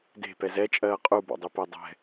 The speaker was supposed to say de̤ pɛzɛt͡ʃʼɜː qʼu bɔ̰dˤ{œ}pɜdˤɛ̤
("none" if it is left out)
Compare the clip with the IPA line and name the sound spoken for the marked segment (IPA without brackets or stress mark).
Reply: ø